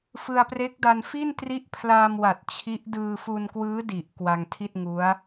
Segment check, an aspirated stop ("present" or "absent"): present